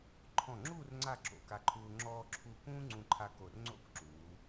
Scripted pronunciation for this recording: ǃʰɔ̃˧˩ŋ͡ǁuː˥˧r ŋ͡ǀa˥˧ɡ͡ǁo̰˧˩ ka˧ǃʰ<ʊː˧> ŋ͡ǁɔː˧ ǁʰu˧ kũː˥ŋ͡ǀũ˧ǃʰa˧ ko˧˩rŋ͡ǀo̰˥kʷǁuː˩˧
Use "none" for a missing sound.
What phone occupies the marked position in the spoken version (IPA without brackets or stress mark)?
uː˧